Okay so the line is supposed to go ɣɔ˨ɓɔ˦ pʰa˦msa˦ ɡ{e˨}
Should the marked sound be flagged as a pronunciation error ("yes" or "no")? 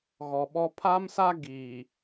yes